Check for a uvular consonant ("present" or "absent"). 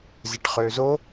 present